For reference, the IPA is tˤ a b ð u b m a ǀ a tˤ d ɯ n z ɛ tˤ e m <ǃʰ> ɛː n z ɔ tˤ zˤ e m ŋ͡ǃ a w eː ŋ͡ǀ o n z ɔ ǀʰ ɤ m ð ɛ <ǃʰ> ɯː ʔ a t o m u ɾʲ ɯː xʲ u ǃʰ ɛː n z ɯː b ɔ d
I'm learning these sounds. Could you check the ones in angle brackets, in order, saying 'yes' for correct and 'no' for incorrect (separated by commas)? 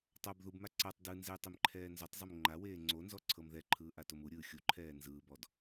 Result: yes, yes